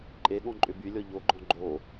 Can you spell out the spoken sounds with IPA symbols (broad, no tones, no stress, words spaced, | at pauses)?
ǃʼeɠɔ̃ǃʼʏ bylʲɔ ʎoɡ͡ǃɔ̃ ɡ͡ǃo